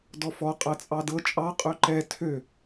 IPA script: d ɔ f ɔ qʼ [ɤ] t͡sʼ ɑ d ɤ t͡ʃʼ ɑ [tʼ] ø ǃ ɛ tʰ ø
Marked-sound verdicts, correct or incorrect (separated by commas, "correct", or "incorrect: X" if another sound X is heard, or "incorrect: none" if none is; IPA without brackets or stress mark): correct, incorrect: qʼ